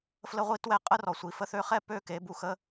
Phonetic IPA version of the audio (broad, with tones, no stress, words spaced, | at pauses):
flə˦ʁʷi˦twɛ˦ qʼə˦rɔ˨sʷi˨ fə˧θø˧χɛ˦˨ pø˦ke˨˦ bu˧xə˦